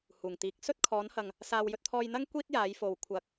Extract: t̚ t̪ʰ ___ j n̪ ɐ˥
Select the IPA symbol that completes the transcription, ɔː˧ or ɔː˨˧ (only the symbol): ɔː˧